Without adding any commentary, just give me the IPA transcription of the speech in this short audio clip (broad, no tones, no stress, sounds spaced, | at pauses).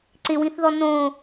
ǀ ɪ w ĩ θ ð ɔ n õ